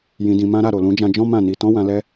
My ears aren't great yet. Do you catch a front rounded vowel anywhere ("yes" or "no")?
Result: no